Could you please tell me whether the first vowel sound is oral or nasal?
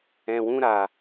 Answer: nasal